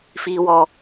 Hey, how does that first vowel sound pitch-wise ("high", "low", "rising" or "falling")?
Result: high